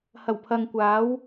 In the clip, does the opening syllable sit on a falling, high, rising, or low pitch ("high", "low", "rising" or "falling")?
low